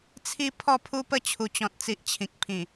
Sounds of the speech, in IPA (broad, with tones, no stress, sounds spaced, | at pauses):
t͡sʰ i˦ pʰ ɔ˥˧ pʰ u˦ p ə˥˧ t͡ɕʰ u˨˩ t͡ɕ ɔ̃˨ t̚ t͡s i˨ ʔ t͡ɕʰ ĩ˨ k̚ pʰ ĩ˨˩